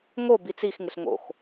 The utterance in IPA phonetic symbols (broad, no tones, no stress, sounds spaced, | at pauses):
ŋ o b i t͡s i x ŋ ɪ ɬ ŋ o̰ x